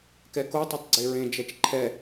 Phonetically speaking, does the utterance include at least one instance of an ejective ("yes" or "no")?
no